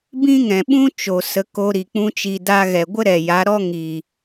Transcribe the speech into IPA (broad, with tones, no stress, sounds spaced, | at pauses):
b ĩ˦ ŋ ɛ̃˨ ɓ ũ˦ t͡ʃ o˨ s ə˨˦ k o˧ ɾ i˨ k͡p ũ˧ t͡ʃ i˨ d a˧ ɣ ɛ˨ ɡʷ ə˦ ɾ ɛ˨ j a˨˦ ɾ ɔ˦ ŋ i˨